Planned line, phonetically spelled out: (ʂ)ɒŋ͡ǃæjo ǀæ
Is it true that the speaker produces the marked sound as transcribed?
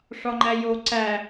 yes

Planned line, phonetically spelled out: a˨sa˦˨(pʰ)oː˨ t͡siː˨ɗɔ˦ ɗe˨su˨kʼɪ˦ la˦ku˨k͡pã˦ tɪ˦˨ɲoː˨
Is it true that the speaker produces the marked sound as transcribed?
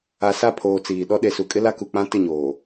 yes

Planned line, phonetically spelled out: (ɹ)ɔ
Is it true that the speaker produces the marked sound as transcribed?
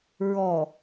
yes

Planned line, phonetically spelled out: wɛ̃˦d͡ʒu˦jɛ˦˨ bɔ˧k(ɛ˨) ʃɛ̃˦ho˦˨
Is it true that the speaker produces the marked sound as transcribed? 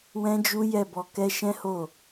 no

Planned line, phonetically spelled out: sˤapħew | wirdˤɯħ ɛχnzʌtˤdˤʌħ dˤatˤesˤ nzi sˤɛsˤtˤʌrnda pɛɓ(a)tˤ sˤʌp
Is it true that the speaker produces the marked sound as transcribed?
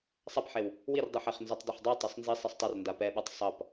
yes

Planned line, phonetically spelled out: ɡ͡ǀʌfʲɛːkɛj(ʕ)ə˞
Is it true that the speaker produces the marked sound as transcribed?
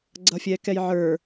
yes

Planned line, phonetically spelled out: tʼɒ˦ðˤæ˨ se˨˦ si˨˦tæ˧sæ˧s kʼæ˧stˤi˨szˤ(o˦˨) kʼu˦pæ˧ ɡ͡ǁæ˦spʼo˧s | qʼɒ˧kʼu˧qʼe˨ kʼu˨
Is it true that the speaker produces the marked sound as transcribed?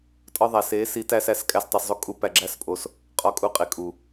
no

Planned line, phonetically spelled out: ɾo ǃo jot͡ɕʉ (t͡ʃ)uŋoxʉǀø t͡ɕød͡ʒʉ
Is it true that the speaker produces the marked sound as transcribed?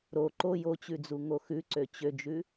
no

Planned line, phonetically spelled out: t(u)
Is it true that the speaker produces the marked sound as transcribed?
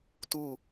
yes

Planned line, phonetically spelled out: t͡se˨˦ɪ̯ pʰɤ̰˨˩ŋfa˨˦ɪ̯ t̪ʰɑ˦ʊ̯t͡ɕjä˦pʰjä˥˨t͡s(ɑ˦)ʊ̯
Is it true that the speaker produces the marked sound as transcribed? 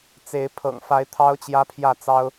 yes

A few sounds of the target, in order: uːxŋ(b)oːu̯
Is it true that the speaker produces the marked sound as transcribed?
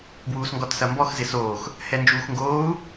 no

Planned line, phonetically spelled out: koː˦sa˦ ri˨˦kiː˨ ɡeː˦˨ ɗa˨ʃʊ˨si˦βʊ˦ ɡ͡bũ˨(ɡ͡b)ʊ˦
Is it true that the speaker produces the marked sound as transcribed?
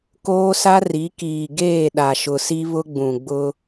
yes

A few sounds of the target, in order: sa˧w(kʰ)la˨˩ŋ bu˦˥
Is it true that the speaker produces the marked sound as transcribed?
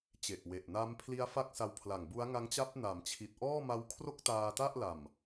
no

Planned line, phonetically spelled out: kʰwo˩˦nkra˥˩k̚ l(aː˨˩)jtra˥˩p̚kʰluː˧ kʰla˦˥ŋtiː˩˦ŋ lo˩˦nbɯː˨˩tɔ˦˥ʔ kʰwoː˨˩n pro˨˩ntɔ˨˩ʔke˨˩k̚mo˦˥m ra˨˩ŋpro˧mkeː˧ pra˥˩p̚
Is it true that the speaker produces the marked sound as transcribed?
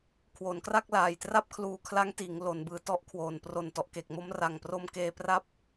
yes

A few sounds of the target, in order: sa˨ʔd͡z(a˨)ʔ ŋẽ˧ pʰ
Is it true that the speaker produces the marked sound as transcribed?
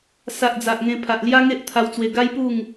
yes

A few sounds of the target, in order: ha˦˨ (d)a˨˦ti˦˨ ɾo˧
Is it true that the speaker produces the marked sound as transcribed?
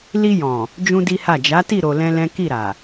no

